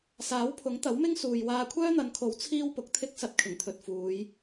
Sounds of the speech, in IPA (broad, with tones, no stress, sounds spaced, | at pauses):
s aː˨˥ w pʰ ʊ˨˥ ŋ t̪ ɐ˨˥ w m ɪ˥ ŋ s uː˧ j w aː˧ kʷʰ œː˥ n̪ ɐ˨˧ n kʰ o˨˥ w t͡sʰ iː˥ w p ʊ˨˥ k̚ t̪ʰ ɪ˥ k̚ s ɐ˧ t̚ kʰ ɪ˨˩ ŋ t̪ʰ ɵ˨ t̚ f uː˨˧ j